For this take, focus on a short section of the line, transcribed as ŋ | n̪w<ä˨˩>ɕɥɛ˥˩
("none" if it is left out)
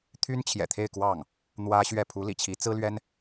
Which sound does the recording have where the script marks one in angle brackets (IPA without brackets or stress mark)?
ä˥